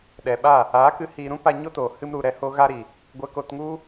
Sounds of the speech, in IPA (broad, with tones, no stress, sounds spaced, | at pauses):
ɗ ɛ˨ ɓ a˦˨ | a˨˦ k ɨ˧ h i˧ ɾ ũ˦ p a˧ ɲ o˦ t o˨ h ɨ˧ m ɾ u˨ ɾ ɛ˦ h o˦ ɣ a˧ ɾ i˨ | ɡʷ ɛ˧ k o˧ t ŋ u˦